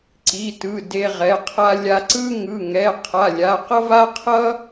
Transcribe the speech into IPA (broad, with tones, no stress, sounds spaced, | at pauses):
ǀ i˩˧˩ t ɯ˩˧˩ d e˧ ʁ ɛ˩˧˩ qʰ a˧ lʲ a˧ ǀ ɯ˥ ŋ ɯ˩˧˩ ŋ ɛ˩˧˩ qʰ a˩˧˩ lʲ a˩˧˩ q ʌ˥ v a˥ qʰ ʌ˥